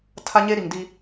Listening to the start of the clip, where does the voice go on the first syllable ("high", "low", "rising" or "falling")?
high